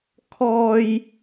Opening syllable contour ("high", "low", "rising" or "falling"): high